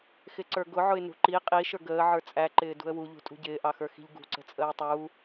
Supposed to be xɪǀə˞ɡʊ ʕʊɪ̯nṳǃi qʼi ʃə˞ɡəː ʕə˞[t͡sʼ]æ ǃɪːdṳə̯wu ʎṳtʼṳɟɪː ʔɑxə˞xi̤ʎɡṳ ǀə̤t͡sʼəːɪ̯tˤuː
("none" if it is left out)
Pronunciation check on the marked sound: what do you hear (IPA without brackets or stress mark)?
t͡sʼ